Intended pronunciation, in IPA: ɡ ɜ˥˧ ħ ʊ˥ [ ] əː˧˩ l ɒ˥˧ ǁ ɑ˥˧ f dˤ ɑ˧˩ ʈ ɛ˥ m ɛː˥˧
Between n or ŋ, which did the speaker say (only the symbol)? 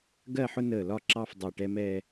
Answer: n